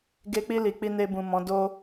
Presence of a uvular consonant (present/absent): absent